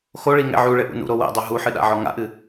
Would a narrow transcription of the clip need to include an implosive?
yes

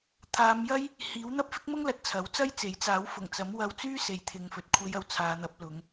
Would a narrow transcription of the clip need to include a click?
no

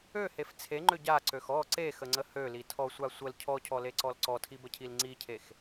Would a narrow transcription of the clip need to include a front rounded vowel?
yes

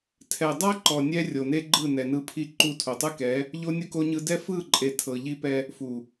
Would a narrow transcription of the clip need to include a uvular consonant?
no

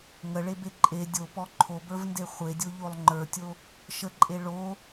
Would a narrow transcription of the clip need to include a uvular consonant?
yes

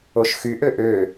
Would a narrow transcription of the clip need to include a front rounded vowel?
yes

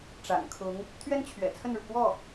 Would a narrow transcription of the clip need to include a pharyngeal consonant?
no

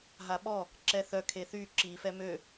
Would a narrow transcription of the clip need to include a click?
yes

